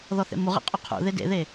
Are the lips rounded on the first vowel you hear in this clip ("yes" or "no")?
yes